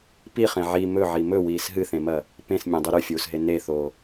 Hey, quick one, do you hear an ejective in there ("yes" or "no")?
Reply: no